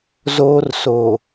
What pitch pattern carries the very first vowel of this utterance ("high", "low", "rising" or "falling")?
high